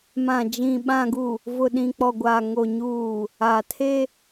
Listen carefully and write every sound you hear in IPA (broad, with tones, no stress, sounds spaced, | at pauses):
m ã˨ d͡ʒ ĩ˨ ɓ ã˨ ɡ u˨ | v ʊ˨ ɗ ĩ˨ k͡p ɔ˨ ɡʷ a˨ ŋ o˨ ɲ uː˨ | a˨ tʰ e˦